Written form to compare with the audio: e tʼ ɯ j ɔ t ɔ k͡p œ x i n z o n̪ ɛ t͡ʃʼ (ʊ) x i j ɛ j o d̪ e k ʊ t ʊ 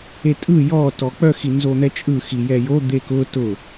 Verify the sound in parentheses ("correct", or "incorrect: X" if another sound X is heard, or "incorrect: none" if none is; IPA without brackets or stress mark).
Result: incorrect: ɯ